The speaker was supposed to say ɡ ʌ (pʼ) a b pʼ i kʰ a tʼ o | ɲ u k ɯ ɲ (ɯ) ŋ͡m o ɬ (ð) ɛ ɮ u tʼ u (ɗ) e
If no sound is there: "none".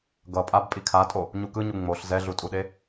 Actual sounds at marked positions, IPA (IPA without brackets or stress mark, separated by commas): pʼ, u, z, ɗ